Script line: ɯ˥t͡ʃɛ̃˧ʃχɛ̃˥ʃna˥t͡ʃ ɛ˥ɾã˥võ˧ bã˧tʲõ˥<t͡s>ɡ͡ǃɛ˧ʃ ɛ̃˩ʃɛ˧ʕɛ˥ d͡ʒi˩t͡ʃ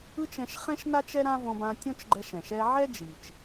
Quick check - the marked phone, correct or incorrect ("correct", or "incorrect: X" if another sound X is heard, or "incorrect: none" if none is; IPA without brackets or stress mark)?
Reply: incorrect: t͡ʃ